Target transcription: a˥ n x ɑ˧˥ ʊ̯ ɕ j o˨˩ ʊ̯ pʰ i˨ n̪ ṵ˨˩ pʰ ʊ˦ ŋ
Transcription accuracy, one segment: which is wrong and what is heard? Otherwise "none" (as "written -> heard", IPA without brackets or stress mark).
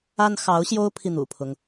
o˨˩ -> o˥